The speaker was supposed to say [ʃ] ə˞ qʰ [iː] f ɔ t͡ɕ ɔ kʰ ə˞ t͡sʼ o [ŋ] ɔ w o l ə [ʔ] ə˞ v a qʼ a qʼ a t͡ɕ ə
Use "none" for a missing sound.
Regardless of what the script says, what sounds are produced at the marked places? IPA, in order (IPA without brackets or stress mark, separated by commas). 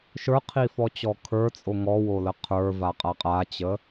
ʃ, i, ŋ, qʰ